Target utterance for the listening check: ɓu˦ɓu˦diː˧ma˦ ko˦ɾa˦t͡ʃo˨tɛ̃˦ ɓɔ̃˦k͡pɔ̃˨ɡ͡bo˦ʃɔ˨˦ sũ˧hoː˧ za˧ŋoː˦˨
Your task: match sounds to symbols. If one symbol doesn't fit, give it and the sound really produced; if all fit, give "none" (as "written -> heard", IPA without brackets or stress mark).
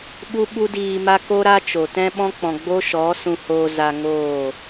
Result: none